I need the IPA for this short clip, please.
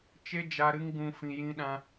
t͡ʃ e˦ d͡ʒ a˧ ɾ ɨ˦ ŋ ɡ ũ˧ f ĩ˧ j ĩ˦ ɗ ã˦

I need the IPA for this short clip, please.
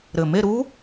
ɾ ɘ˨˩ m e˥˧ ɾ u˦˥

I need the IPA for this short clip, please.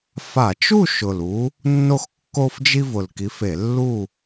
f a˧˩˧ t͡ʃ u˥˨ ʃ ʊ˨˩ l u˨˦ | nː o˦ x kː o˦ f d͡ʒ i˦ v ʊ˨˩ l k i˨˦ f e˧˩˧ lː u˥˨

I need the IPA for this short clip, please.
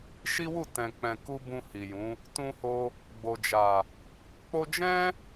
ʃ i˦ w u˦˨ t ɛ̃˨ k͡p ɛ̃˨ k u˧ b ũ˧ h i˨ j ũ˨˦ | t ũ˧ h o˧ | ɡ͡b o˨ d͡ʒ a˨ | k͡p o˧ d͡ʒ ɛ̃˦

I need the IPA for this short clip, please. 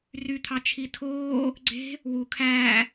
r y t̪ʰ ɑ t͡ʃʰ i tʰ oː | ɡ͡ǀ e̤ | w u kʰ æː

